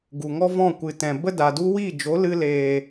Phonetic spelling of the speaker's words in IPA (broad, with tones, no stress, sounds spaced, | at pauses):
ɡ u˨ ŋ ɔ˦ v ɔ̃˦˨ kʷ ɨ˨ t ɛ̃˨ b ə˦ d a˨ d u˦ w i˦˨ d͡ʒ o˨˦ l ɨ˧ l eː˨